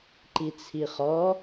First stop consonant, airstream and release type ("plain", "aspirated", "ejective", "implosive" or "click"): click